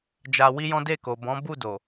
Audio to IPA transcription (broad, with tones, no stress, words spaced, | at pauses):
d͡ʒa˧wi˦jɔ̃˦ de˦˨ko˨bɔ̃˨˦ bu˦˨do˨